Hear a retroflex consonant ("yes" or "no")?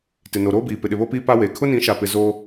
no